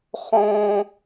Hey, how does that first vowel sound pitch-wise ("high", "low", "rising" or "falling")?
high